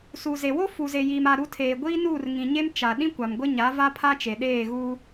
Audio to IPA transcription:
suː˨ze˨ wo˦ fu˨ze˨jiː˨ma˨ ɾu˨˦tʰeː˨ ɡʷiː˦nuː˦˨r ŋĩ˨ɲe˦m t͡ʃa˨ ɗĩ˦kʷa˨mɡʷɪ˦ɲa˨˦ va˦pʰa˦t͡ʃe˨ɗeː˦˨ ɣuː˦

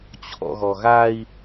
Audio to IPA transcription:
t͡ɕʰɔ̰ɣɔɣai̯

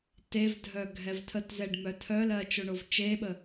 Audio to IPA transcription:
tevdʱœ ɡʱɛvtʰətzɛɖ mœtʰœlɜ t͡ʃoɳovt͡ʃeɓə

